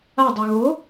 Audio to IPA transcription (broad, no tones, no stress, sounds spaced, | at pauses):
a dˤ ə˞ ɣ o